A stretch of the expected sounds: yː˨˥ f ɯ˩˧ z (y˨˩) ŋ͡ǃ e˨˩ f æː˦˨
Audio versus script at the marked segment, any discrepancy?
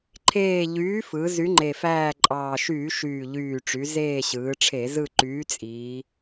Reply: yes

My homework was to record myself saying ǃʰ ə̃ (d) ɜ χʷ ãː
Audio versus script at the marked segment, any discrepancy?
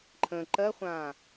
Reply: yes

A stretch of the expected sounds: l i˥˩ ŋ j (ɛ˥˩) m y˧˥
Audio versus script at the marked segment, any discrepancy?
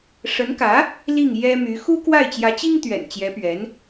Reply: yes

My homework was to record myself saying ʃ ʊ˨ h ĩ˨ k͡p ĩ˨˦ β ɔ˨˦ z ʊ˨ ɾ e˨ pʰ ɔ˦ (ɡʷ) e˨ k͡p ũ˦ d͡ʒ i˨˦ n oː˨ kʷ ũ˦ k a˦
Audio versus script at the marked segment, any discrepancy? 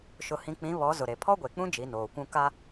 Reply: no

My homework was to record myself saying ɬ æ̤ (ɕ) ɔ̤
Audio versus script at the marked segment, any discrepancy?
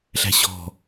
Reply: no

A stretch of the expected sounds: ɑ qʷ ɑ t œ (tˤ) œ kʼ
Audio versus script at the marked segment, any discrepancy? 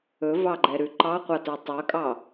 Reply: no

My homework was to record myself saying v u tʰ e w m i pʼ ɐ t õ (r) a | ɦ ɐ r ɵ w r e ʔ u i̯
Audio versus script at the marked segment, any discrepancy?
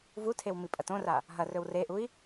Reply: no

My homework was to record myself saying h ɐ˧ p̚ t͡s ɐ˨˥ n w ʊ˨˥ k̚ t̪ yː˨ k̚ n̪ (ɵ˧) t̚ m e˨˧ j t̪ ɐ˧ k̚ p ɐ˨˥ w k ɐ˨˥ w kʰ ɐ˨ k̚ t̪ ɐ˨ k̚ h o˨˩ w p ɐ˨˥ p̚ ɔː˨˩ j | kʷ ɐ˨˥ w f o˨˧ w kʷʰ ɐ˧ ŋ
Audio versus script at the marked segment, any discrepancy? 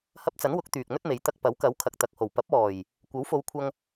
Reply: yes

